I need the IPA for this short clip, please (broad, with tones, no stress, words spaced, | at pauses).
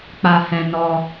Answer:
k͡pa˧hɛ̃˧ nɔ˧